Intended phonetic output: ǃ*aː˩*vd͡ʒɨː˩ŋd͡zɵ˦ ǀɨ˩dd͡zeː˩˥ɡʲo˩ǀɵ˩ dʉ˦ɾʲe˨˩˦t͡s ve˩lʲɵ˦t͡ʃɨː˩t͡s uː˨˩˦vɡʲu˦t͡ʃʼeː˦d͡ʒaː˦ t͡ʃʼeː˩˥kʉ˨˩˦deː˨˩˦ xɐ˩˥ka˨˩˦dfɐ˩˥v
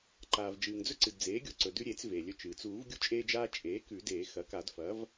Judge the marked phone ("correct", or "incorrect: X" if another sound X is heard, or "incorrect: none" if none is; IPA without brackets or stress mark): correct